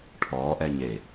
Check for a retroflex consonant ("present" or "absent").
present